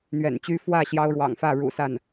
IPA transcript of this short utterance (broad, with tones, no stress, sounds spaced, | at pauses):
n̪ ɥ ɛ̰˨˩ n t͡ɕ y˥ f w ä˥˩ ɕ j ɑ˥ ʊ̯ ɻ w ɑ̰˨˩ ŋ f ä˥˩ ɻ ṵ˨˩ s a˥˩ n